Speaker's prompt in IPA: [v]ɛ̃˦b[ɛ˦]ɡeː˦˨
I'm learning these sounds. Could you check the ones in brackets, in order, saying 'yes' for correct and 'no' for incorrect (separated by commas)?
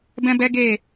no, yes